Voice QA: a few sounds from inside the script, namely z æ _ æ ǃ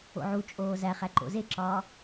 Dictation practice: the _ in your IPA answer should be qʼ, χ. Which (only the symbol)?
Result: χ